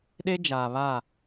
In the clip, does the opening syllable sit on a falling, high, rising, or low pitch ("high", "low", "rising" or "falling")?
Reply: high